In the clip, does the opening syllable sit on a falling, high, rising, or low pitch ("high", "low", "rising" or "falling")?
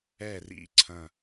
falling